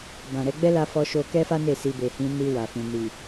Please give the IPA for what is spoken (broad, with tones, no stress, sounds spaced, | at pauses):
b ã˨ ɾ ɛ˨˦ ɡ͡b ɛ˦ l a˧ f ɔ˧ ʃ o˧ k ɛ˦ f a˦ n e˦˨ s i˧ b e˨ h ĩ˧ n i˧ w a˨ f ĩ˨ n i˨